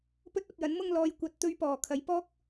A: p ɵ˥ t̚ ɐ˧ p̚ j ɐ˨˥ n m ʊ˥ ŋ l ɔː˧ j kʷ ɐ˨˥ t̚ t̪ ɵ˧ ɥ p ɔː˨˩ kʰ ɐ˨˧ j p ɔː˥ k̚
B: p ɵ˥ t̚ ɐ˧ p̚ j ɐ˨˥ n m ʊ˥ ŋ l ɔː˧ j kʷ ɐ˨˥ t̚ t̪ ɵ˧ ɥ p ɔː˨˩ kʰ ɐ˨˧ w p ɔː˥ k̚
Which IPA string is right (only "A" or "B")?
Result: A